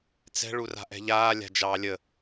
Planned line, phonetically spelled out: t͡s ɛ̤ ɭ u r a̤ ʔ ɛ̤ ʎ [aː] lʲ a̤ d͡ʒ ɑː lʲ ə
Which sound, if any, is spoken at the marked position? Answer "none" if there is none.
aː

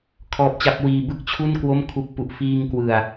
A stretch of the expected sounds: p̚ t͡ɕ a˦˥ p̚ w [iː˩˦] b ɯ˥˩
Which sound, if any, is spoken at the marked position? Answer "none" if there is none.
iː˧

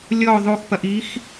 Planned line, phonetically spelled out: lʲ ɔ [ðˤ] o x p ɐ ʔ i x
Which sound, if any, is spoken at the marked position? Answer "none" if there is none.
ðˤ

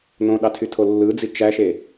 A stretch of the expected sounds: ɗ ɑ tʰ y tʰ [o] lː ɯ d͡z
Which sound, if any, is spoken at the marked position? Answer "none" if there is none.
o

